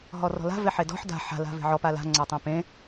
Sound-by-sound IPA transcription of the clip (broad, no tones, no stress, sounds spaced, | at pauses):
ɦ ɔ r ɔ̤ l a̤ v e ħ e d ɔ̤ ħ d a̤ ħ a̤ l a̤ v e̤ ʕ ɔ p a l a̤ ŋ͡ǀ a tˤ ẽ p ẽ